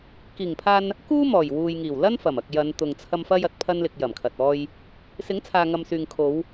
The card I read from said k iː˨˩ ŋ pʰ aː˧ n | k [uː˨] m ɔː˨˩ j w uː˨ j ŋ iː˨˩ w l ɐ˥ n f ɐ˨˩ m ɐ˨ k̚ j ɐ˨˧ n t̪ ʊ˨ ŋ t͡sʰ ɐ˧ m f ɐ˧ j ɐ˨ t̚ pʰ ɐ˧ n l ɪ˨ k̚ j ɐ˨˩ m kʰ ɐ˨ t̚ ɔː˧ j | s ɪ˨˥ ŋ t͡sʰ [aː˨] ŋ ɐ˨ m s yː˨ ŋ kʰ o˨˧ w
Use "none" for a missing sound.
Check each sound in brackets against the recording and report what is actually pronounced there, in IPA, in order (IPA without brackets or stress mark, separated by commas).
uː˥, aː˨